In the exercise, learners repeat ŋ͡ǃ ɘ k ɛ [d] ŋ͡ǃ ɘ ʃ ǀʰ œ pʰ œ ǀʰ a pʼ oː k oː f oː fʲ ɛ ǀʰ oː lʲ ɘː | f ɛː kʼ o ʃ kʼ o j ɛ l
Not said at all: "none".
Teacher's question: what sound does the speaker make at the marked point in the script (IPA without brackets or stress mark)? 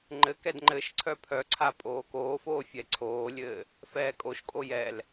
d